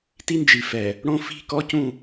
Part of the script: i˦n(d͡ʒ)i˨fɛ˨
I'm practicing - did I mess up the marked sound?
no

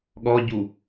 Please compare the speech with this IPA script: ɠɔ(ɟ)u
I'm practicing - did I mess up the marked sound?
no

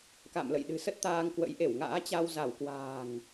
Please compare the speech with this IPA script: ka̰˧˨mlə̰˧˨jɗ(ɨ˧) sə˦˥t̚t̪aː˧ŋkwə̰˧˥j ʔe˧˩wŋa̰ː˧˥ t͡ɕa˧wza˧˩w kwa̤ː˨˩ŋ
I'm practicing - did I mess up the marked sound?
yes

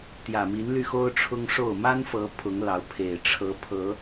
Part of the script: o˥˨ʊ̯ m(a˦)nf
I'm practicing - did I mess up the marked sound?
no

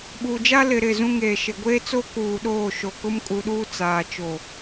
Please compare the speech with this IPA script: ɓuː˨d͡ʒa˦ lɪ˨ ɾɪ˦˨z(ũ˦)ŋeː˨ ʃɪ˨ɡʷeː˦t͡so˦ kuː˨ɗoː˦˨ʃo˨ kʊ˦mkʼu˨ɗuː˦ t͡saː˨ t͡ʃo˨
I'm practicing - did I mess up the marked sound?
no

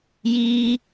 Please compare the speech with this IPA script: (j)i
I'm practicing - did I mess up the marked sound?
no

